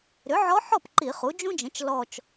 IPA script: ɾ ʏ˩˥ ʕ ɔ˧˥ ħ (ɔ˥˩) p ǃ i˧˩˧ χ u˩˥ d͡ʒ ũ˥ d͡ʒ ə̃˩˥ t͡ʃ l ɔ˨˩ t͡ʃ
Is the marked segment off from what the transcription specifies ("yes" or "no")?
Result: no